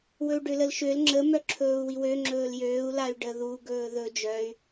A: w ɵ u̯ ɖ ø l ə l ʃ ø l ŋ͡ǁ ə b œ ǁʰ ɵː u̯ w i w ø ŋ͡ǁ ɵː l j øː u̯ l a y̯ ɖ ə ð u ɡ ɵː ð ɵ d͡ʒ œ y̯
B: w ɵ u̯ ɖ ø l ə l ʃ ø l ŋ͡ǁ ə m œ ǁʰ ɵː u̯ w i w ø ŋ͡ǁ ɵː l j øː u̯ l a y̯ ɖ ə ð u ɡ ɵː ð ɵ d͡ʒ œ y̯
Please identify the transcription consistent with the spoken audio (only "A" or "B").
B